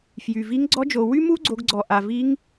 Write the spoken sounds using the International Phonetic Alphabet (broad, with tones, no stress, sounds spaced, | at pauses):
f j y˩ v i˧˥ ŋ ɡ͡ǀ ɔ˧˥ d͡ʒ o˩ w y˥ m u˥ ɡ͡ǀ o˩˧ ɡ ɡ͡ǀ ɔ˩ ʔ a˩ v i˧˥ ŋ